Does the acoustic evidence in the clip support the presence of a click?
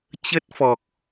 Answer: no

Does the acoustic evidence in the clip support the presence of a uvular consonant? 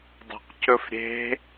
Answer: yes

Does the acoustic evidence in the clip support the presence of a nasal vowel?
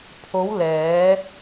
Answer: no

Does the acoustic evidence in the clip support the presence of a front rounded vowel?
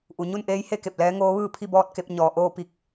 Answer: no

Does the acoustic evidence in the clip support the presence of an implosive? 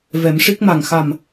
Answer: no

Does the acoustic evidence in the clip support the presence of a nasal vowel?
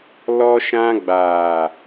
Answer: yes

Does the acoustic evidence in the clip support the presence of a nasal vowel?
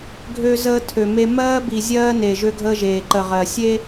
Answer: no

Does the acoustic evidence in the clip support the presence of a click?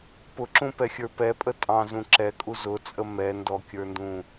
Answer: yes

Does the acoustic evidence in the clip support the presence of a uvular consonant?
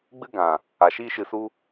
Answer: no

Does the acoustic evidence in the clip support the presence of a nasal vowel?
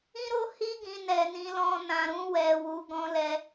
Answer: yes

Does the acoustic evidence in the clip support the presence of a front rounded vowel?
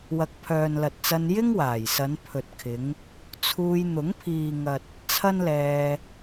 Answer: yes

